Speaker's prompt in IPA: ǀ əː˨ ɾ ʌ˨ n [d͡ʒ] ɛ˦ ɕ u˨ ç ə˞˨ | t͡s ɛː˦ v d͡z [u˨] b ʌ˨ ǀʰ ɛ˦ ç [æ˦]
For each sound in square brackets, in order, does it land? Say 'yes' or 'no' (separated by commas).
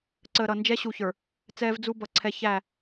yes, no, no